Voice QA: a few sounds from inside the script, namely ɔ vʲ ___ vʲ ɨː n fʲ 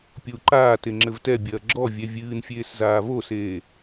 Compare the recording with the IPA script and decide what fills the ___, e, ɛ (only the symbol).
ɛ